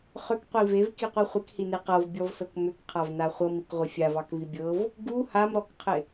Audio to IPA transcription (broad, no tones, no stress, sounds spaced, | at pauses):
χ ʏ k qʷ i v e v k i qʷ i χʷ ɪ k h i n e q ɤ v bʲ ɔ v s ɤ k m ʏ k qʰ a v n a χʷ ɤ m i k ʁʷ ɪ fʲ a v ɑ k v i bʲ ɤ v | ɡ u h a m ɾ ɔ k qʰ ɪ